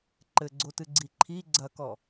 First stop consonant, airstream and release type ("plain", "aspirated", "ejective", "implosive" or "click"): click